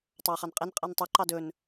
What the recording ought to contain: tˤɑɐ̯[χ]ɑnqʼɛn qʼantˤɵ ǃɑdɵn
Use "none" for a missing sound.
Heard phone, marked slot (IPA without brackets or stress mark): χ